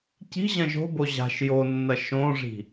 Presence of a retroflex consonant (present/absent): present